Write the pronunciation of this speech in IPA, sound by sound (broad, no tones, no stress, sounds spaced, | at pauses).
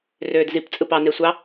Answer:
r øː d z i p t͡sʼ ɯ p ɑ n e sʷ ɑ